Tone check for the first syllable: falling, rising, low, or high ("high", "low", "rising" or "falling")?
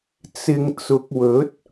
low